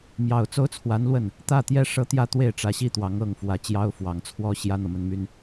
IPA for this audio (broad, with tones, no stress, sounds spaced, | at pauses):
m j ɑ˨˩ ʊ̯ t͡s o˥ ʊ̯ t͡sʰ w a˧˥ n l w ə˥˩ n | t̪ ä˥˩ t̪ j ɛ˥ ʂ ɤ˥ t̪ j ä˥˧ t̪ w e˥˩ ɪ̯ ʈ͡ʂ ä˧˥ ɕ i˥ t̪ w ɑ˧˥ ŋ ɤ˥˩ ŋ f w ä˧˥ t͡ɕ j ɑ˥ ʊ̯ f w ɑ˨˩ ŋ t͡sʰ w ɔ˥ ɕ j ä˥ n̪ ɤ˨ m ə˥ n m y˥ n